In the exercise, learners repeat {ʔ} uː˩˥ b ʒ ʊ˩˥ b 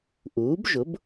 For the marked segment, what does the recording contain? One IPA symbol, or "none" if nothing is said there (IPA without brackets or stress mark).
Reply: ʔ